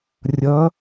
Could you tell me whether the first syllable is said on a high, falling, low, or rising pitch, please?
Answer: rising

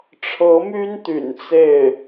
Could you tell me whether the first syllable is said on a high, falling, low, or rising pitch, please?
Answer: rising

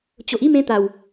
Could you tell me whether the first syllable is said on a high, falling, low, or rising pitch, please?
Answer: low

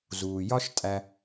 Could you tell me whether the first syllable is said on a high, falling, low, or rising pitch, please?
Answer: low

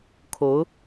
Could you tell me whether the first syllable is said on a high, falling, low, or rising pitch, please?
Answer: rising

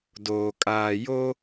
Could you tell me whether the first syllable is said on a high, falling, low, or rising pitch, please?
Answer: low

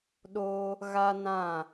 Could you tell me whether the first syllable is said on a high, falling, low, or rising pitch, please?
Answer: high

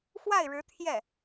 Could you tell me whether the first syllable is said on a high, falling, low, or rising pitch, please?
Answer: falling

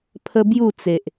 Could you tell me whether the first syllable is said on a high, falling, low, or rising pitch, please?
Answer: high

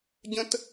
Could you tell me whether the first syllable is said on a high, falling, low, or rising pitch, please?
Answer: high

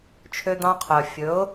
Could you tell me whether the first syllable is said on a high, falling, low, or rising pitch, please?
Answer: high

